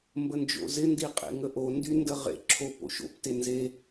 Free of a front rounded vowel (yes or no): no